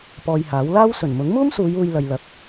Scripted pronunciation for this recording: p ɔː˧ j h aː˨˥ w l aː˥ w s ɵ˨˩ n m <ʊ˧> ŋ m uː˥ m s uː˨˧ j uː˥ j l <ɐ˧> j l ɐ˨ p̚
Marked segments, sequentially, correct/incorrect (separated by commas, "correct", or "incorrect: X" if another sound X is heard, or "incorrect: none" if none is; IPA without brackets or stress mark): incorrect: ʊ˨˥, correct